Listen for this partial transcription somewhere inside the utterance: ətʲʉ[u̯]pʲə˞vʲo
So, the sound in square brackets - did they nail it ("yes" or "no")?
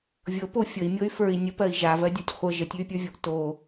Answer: no